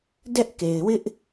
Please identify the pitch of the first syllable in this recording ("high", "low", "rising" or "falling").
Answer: high